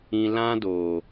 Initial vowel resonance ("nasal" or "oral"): nasal